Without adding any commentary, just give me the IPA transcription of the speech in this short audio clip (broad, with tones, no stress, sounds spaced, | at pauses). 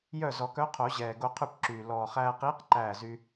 j œ˥˩ z ɔ˨˩˦ k œ˧˥ qʰ o˨˩˦ ʑ ɛː˨˩ ɡ o˧ qʰ ʉ˥˩ p ǁ yː˨˩ l ɔː˨˩ χ æː˧ q iː˧˥ q ǃ æː˥˩ z y˥